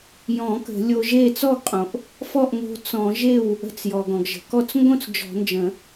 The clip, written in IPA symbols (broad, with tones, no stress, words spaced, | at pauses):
jɔ̃˨˩˦ kə̤˨˩˦lʲo˧ʒe˥˨ t͡sɔ˥˨ɡqʼõ˩ʔ | fɔ˥˨ʔŋo̤˧ t͡sɔ̃˨˩˦ʒe˥˨w | ə̤˧t͡sjɔ˩ɡ ɔ̃˩ɡʒə̤˩kɔ˥˨t͡s ŋɡõ˥˨t͡s d͡ʒɔ̤˨˩˦nd͡ʒə̃˨˩˦